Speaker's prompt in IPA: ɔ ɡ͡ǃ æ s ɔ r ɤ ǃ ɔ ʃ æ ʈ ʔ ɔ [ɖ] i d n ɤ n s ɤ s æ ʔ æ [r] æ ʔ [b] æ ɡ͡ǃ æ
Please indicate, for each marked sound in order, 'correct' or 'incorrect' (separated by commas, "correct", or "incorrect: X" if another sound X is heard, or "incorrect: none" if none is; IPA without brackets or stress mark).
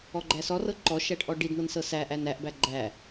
correct, incorrect: n, correct